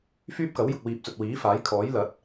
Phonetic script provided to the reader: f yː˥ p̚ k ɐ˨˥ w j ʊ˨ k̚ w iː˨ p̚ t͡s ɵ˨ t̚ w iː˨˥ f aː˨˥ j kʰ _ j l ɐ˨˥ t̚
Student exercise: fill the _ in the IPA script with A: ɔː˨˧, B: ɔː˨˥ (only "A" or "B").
B